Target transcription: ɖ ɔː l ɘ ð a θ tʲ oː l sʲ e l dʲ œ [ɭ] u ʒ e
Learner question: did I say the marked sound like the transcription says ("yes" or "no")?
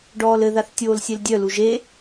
no